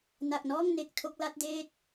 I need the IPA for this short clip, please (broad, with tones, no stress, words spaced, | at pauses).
na˨˩k̚nɔː˥˩ŋne˨˩k̚ tʰo˥˩k̚la˦˥t̚deː˥˩t̚